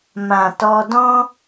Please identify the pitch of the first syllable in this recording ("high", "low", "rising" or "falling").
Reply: low